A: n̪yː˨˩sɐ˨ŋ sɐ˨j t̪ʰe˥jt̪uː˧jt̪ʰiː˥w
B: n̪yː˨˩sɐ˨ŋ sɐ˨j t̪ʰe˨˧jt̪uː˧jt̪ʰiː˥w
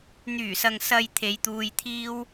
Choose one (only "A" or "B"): B